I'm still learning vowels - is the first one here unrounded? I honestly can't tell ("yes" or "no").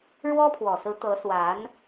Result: no